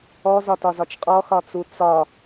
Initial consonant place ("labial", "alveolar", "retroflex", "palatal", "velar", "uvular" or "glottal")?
alveolar